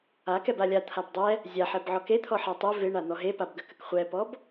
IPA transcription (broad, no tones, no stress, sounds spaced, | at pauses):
a k ɛ b a lʲ a t̪ʰ a b dˤ ɛ | zʲ a ħ ɛ b ʕ ɔ k e t̪ʰ ɔ ħ a tˤ e v ɪ ɳ a n̪ ɔ ɦ e p a b ɡ ə k ə k χʷ ɛ p ɔ b